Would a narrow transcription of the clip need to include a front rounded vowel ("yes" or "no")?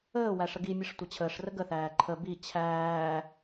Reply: no